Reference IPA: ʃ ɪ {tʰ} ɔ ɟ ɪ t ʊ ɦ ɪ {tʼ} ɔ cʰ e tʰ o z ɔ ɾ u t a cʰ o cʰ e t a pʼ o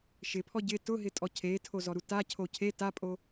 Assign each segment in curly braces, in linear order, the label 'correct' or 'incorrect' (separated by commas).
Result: incorrect, correct